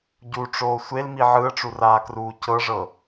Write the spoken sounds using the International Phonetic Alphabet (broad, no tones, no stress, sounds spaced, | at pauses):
ɟ u ʈ͡ʂ oː sʷ e l m i ʕ ɯ ə̯ ʈ͡ʂ u r aː k r uː c ɤ ʐ ɤ